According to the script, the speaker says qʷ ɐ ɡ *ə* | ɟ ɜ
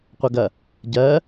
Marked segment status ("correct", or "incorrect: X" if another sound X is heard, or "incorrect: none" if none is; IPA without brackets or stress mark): incorrect: ɐ